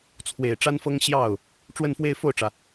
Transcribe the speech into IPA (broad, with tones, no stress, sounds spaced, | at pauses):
t͡sʰ w e˨˩ ɪ̯ ʈ͡ʂ a˥ n f ɤ˥ ŋ ɕ j ɑ˥˩ ʊ̯ | ʈ͡ʂ w ə˥˧ n f w e˥˧ ɪ̯ f o˥˩ ʊ̯ ʈ͡ʂ ä˩